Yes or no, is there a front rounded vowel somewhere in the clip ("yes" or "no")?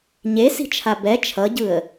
no